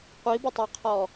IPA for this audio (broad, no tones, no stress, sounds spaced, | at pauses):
qʷ i b ɪ tˤ a qʰ ɔ